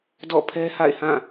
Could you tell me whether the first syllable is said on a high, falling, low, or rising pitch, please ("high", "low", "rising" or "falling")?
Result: falling